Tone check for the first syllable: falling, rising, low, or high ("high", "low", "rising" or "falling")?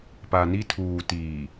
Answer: low